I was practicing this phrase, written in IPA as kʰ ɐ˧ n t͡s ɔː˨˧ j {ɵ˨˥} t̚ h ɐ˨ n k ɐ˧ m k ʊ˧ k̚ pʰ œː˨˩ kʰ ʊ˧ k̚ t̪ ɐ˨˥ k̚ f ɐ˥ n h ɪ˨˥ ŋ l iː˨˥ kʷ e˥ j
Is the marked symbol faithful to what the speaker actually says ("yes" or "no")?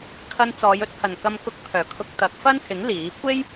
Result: no